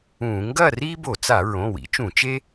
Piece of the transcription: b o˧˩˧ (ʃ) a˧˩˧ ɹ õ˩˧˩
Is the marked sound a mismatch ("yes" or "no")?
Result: yes